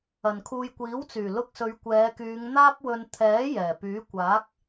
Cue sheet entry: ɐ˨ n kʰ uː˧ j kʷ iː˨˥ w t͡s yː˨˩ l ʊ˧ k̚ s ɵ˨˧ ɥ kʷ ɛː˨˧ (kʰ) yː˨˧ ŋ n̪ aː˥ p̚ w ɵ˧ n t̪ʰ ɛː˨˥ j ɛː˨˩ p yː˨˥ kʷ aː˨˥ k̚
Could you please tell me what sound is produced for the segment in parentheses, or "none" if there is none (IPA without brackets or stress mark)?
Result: k